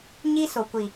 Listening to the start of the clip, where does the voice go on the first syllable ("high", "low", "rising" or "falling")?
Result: high